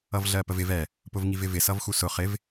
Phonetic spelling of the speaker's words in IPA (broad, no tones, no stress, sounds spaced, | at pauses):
ʌ v ɮ ɜ p ə v ɪ v ɛ | p ʊ v ŋ i v ɪ v ɪ s ʌ v x u s ʊ χ ɪ v